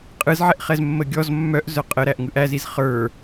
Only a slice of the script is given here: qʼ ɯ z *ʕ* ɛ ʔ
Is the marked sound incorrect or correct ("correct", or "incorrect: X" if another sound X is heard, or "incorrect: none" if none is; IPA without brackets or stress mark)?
correct